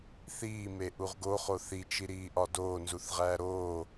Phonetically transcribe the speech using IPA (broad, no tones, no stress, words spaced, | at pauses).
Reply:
θiːme ʔuʁɡoχo θit͡ʃiɾiːʔɒ doː nzuθʁæːɾoː